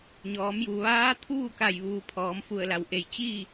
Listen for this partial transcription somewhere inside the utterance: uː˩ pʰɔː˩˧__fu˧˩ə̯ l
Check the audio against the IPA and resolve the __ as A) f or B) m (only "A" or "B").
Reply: B